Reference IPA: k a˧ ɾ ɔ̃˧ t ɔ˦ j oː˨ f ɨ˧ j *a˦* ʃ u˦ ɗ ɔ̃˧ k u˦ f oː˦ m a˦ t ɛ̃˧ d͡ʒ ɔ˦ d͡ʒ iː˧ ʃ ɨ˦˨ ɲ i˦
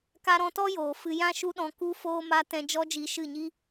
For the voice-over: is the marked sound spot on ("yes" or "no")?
no